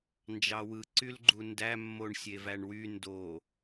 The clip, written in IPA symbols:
n d͡ʒ ɑ w ɯ ǀ y l ɡ͡ǃ u n d æ mː o ɳ sʲ e v æ ɳ w y n d o

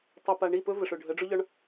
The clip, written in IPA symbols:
tˤ ɵ˨ p a˨ ɳ i˦˨ p ɵ˦ v ə˨ ʂ ʊ˨ ɖʱ ə˨˦ ɖ͡ʐ ʊ˦ ʎ ɒ˦ ɳ

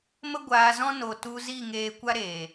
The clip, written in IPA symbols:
m ə˦ ɡʷ aː˧ z ɔ̃˦ n o˨ t u˧ z i˦˨ ŋ eː˧ kʷ a˦ ɾ eː˨

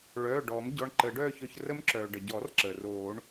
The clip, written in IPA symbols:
ɭ œː˩˧˩ ɖ ɔː˨˩˦ m ɟ ɔ˩˧˩ ɳ ǃ əː˨˩˦ ɖ œː˥˧ ç œ˧ ç r ə˦˥ m ǁ œː˩ ɖ ə˩ ɟ ɔ˨˩˦ r ǁ əː˩ r oː˨˩˦ ɳ

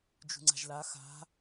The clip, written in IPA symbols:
d͡ʒ ṳ ŋ͡ǀ a̤ ʒ l a x a̤

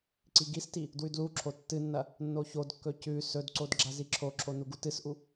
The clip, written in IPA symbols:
ǀ i ɡ i s t i | d w ʉ d l u ǁʰ o tː ɨ nː ɐ | nː o ç o d kː ɵ c ʉ s ɵ d ǀ o d ɡ͡ǁ a z i ǁʰ o ǁʰ o n u ɡ u t ɨ s ʔ u

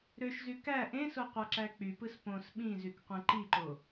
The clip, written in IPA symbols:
ɾ ø ʃ z y k æ ʔ ẽ s o qʷ ɑ ǁ æ k͡p y p ɯ s p õ s ɓ ĩ z y k qʷ ẽ ǃ i ǃ o

